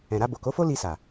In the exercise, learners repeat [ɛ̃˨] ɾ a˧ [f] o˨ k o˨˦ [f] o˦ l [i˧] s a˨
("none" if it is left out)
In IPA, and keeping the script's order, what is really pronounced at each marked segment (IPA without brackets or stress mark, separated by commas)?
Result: ɛ̃˨, b, f, i˧